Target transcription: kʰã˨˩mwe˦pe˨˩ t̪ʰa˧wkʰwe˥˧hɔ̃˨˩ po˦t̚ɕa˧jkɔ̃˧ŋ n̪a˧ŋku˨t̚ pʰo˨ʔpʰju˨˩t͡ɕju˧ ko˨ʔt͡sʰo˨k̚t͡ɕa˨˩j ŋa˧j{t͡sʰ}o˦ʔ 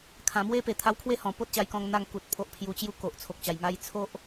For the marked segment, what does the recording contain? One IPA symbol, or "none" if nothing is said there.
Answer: t͡sʰ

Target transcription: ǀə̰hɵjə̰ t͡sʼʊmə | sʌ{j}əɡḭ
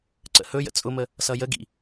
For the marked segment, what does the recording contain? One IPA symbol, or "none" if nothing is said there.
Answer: j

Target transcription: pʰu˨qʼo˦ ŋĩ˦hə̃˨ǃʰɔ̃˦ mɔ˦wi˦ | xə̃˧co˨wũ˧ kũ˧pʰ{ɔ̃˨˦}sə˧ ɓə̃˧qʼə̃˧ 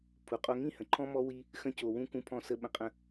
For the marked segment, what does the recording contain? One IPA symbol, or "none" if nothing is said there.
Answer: ɔ̃˧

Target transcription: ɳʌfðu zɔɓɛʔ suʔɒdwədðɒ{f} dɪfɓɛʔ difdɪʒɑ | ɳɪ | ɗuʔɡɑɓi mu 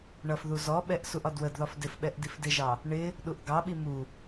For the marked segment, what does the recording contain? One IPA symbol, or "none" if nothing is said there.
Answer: f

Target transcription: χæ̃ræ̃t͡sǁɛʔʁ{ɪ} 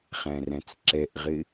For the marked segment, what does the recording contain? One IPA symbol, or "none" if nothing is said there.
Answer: ɪ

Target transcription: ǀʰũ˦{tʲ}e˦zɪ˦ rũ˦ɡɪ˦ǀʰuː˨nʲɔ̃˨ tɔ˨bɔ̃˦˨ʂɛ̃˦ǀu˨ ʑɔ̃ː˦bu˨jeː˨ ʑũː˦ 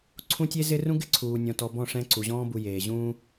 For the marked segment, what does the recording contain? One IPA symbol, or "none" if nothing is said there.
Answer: tʲ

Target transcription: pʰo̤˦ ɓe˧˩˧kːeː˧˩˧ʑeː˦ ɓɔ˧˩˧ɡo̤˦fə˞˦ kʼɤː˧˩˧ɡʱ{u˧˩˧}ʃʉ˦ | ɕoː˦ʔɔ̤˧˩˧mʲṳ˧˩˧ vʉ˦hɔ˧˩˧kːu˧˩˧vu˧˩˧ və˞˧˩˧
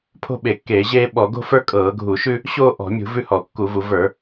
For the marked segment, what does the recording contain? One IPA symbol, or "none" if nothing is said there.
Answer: u˧˩˧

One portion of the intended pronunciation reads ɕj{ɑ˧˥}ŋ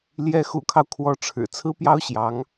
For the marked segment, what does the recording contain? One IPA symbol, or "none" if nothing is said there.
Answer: ɑ˧˥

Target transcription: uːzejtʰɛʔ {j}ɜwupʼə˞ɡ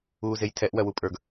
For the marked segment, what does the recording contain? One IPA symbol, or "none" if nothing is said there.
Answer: w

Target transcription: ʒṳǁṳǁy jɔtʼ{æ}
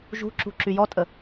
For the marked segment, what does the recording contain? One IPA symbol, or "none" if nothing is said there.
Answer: ə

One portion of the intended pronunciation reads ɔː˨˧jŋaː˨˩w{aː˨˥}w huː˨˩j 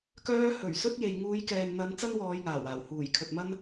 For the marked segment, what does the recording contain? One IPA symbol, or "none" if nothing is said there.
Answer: aː˨˩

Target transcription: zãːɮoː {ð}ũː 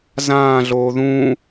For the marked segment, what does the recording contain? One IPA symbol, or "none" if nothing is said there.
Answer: ð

